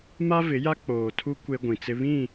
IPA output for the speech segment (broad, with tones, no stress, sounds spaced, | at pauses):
m a˦ v ɪ˨˦ j a˦ k͡p oː˨ tʰ u˦ kʷ e˦ ɡʷ ĩ˨ t͡s ɪ˦ β ĩ˦˨